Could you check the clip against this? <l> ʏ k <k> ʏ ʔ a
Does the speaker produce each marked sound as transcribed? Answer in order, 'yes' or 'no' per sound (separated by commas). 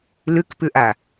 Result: yes, no